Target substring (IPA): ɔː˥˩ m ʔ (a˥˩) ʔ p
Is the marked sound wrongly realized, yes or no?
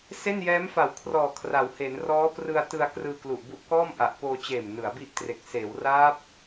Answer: yes